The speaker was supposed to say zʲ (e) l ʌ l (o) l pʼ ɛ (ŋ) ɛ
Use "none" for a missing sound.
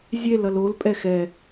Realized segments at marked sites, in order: e, o, x

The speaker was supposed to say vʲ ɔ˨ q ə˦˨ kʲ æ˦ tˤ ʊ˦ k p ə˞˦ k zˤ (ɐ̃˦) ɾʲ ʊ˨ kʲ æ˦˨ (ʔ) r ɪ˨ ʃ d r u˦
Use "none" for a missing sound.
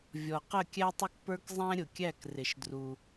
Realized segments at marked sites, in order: æ̃˦, k

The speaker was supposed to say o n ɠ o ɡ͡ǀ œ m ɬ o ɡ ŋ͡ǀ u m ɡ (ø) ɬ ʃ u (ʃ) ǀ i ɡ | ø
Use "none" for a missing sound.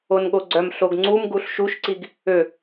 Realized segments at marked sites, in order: u, ʃ

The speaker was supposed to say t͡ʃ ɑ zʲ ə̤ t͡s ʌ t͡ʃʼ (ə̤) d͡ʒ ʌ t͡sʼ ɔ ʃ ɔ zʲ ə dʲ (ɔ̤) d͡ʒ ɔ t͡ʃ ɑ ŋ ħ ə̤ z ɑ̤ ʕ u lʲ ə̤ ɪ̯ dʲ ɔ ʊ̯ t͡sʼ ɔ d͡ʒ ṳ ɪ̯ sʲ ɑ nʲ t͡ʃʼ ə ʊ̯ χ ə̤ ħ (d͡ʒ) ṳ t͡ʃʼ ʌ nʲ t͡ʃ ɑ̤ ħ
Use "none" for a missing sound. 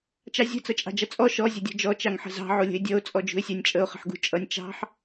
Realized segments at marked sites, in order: ɑ̤, ɔ̤, ɡ

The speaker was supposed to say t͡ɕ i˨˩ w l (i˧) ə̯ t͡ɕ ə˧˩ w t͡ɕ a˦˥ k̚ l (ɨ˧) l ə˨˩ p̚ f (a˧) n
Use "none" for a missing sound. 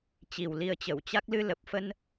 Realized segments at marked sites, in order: i˧, ɨ˧, ə˧

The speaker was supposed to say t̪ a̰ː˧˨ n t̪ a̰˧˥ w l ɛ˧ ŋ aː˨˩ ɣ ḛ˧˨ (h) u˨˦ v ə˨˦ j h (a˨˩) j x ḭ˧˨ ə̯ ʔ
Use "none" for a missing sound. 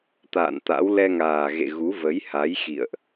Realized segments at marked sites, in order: ɣ, a˨˦

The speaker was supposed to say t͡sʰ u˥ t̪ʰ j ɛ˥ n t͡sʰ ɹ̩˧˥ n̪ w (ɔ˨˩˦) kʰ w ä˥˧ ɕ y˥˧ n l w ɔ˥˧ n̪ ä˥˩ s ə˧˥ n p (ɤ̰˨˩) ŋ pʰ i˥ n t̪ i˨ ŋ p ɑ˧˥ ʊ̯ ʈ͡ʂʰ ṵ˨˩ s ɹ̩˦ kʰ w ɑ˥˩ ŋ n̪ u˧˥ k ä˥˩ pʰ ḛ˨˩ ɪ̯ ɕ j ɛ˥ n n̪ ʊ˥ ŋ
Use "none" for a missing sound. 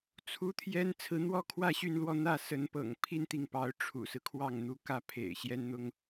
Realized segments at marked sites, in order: ɔ˥, ɤ̰˨˩

